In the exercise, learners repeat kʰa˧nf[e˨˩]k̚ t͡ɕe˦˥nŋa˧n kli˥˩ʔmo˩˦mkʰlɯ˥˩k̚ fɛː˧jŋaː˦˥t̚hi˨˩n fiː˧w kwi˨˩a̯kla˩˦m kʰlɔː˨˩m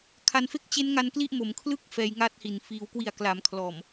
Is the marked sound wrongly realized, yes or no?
yes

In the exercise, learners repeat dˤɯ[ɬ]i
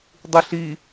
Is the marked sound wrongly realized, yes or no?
no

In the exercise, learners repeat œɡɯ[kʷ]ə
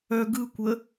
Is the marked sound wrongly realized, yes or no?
no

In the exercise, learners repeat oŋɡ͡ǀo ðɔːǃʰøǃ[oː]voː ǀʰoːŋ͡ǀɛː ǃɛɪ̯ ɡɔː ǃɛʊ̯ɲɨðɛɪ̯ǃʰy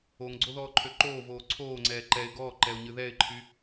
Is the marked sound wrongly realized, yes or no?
no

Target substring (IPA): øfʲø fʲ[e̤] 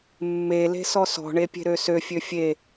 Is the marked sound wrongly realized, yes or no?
yes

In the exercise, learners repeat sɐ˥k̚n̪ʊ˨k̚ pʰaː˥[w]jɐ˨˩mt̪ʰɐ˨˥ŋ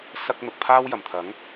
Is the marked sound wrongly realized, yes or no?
no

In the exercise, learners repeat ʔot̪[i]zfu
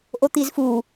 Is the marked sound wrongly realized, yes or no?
no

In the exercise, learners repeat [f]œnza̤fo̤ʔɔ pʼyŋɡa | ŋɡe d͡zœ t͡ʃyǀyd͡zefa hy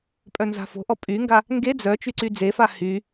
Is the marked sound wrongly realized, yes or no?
yes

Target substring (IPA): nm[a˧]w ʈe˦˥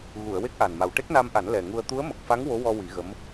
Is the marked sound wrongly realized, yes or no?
yes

